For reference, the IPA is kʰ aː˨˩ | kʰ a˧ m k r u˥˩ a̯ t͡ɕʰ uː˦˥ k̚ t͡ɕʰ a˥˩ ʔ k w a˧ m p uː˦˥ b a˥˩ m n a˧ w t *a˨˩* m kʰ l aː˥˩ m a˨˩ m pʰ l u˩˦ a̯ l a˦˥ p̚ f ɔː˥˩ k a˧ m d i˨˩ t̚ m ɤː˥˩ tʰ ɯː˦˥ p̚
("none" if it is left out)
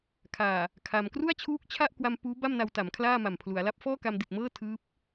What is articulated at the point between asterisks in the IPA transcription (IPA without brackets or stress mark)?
a˩˦